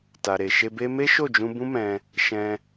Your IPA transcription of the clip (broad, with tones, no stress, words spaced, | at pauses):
ta˨ɾe˨ʃe˧be˦ me˦ʃo˦˨d͡ʒũ˧ bũ˦mɛ̃˧ | ʃɛ̃˧